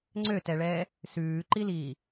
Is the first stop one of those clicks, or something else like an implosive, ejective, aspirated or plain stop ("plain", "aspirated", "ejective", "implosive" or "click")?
click